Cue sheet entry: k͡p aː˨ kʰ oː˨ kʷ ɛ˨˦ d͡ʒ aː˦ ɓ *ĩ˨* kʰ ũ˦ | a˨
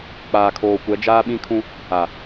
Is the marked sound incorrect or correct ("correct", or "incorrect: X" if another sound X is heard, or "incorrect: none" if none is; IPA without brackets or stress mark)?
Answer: incorrect: ĩ˦